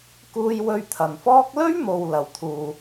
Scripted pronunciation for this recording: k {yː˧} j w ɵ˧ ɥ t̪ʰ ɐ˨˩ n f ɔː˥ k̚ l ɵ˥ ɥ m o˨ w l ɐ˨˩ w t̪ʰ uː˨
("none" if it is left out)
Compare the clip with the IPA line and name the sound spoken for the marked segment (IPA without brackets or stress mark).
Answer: uː˧